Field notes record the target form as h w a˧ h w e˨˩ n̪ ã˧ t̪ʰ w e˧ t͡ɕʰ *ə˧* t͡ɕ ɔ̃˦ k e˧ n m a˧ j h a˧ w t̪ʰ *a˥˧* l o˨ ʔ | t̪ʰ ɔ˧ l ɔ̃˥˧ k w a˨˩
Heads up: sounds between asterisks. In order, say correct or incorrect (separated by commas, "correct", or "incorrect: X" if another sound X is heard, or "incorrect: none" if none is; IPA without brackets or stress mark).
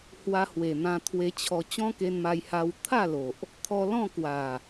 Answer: incorrect: ɔ˧, correct